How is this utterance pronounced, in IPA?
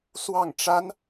swɑ˥˩ŋʈ͡ʂa˥n

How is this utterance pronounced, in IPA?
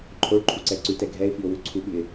ǃʰoɭǃʰuǀɛ ǀʉtɛ ɡʱɛɪ̯fiʊ̯wʉ ǀʰuɓʉɪ̯

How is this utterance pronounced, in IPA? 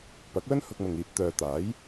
pɐ˨˥k̚wɵ˥n hʊ˧k̚mʊ˨ŋ iː˨p̚t̪œː˨ t̪aː˨˥j

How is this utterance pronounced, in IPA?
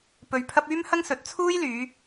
pɵ˧ɥpʰɐ˥p̚ yː˥mhɐ˥ŋsɵ˨˥t̚ t͡sʰuː˥jlyː˨˧

